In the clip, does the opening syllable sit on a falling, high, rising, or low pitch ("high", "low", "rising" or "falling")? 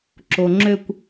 low